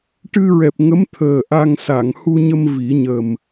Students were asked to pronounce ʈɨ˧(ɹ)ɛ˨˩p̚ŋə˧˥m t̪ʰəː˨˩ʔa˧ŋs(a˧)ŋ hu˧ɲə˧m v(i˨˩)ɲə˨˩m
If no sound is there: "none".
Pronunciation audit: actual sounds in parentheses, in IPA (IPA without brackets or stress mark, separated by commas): ɹ, a˨˩˨, i˨˩˦